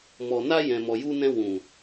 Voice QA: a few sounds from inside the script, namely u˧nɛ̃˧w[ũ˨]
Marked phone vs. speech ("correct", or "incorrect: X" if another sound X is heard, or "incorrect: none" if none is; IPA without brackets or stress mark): correct